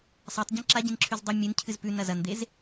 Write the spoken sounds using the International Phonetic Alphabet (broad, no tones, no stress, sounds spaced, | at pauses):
sˤ a tˤ ɟ ĩ ǁ a ɟ ĩ n ǁʰ ʉ z dˤ ɨ mʲ ɨ n cʰ ɨ z p ʉ n ɐ z ɐ n d̪ e z